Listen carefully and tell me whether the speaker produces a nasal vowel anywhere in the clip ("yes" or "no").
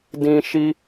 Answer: yes